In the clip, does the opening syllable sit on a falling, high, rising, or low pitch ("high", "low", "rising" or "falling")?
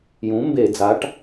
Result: rising